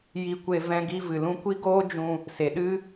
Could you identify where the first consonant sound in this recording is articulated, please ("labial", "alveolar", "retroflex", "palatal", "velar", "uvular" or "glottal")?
palatal